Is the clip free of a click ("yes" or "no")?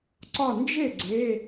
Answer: no